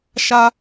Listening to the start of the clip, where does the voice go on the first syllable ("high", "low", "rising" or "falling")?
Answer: high